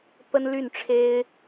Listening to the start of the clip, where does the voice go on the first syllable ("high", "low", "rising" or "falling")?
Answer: high